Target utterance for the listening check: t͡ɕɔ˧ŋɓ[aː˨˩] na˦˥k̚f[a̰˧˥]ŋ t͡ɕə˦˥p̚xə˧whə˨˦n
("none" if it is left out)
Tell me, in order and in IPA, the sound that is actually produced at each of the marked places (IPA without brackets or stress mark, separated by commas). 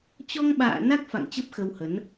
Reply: a̰ː˧˨, a̰˧˨